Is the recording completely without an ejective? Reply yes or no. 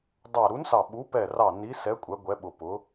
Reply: no